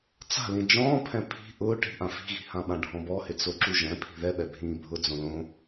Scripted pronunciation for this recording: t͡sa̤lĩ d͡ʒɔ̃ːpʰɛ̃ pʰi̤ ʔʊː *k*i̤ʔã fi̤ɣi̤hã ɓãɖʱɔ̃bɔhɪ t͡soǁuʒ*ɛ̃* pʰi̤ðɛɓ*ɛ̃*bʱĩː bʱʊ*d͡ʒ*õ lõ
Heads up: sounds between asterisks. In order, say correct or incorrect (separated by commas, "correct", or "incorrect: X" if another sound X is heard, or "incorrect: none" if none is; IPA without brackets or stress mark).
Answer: incorrect: ʈ, correct, incorrect: ɛ, incorrect: d͡z